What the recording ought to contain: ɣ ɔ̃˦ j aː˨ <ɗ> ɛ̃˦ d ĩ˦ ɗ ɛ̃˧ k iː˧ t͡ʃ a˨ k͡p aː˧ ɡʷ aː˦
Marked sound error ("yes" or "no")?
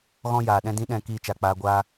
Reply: no